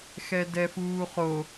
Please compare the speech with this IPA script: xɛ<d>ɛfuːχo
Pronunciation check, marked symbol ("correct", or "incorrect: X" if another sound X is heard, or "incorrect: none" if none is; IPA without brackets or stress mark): correct